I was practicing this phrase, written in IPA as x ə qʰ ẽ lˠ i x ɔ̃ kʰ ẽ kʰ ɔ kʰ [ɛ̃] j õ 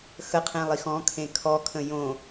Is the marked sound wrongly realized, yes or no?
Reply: yes